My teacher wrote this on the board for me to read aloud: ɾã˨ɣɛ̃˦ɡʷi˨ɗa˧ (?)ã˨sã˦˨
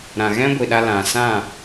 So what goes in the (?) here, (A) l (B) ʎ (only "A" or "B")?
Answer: A